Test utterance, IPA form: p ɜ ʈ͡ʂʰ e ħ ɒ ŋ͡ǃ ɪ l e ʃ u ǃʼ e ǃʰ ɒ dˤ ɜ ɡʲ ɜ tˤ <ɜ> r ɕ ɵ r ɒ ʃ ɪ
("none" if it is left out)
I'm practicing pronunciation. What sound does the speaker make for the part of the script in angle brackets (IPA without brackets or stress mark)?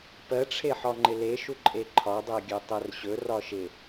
ɜ